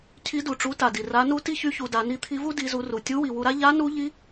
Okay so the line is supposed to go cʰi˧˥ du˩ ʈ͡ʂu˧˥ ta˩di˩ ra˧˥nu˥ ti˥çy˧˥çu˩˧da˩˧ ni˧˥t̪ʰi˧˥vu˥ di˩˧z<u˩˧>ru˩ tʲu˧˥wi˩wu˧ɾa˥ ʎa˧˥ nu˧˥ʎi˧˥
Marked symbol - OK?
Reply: yes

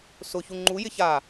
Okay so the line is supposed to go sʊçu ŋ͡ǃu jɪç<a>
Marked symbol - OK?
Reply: yes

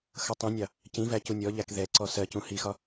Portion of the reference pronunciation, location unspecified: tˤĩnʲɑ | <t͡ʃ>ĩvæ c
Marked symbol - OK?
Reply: no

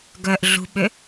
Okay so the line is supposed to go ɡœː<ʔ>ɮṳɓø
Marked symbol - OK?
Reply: yes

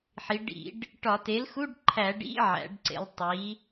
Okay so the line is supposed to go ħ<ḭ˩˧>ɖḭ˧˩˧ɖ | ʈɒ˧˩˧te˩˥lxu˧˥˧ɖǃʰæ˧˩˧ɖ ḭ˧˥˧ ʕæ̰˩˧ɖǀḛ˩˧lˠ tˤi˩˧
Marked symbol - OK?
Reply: no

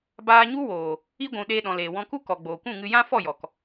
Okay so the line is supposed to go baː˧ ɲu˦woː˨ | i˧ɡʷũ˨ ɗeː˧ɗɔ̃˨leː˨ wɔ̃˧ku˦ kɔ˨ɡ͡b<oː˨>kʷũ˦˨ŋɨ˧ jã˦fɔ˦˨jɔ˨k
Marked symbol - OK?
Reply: yes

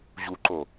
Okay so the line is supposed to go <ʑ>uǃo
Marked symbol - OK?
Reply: yes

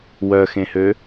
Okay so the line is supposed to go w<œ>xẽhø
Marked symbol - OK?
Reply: yes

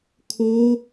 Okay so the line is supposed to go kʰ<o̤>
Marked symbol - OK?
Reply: no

